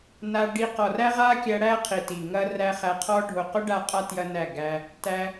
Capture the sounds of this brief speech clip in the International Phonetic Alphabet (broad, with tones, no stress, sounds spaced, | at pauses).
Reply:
n a˧ ɖ i˧ q ɔ˨ r æ˦ ʁ a˦ kʲ æ˧ ɽ æ˦ qʰ i˨ t i˨ ŋ ɐ˦ r æ˦ χ æ˧ qʰ ɔ˦ ɖʱ o˨ q o˦ ɖ a˧ qʼ a˦ t j ɐ˦ n æ˦˨ ɡ æ˦ | t æ˦